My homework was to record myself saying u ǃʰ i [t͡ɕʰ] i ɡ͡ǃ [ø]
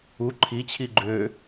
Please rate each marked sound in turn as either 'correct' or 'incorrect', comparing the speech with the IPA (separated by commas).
correct, correct